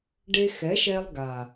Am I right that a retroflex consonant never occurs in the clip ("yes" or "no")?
no